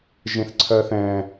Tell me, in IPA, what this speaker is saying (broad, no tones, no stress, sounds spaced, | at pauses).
ʒ ẽ θ ǀʰ ɜ θ ɛ̃